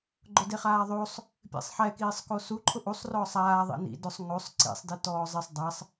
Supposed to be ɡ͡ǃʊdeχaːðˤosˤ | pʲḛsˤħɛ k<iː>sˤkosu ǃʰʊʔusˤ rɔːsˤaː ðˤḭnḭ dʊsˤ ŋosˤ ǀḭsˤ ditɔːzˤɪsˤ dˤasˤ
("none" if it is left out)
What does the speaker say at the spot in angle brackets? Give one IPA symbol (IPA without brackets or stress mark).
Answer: iː